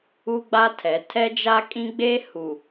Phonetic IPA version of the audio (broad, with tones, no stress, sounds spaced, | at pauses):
u˦ ɡ͡b a˦ tʰ ɛ˨˦ tʰ ɛ˦ d͡ʒ a˦ kʼ ĩ˦ ɡ͡b eː˦ h u˨